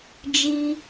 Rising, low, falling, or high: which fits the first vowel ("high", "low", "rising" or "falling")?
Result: high